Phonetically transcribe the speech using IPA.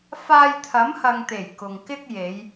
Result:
f aː˧ j t̪ʰ ɐ˨˥ m h ɐ˨ ŋ t̪ e˨˩ j k ʊ˨ ŋ k ɪ˥ k̚ j e˨˧ j

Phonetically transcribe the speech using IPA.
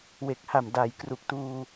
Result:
w e˨˩ k̚ h a˨˩ m d aː˩˦ j k r u˨˩ k̚ t uː˧

